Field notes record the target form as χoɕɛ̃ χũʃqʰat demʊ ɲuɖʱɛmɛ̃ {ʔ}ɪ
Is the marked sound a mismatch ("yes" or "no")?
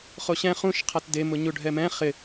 yes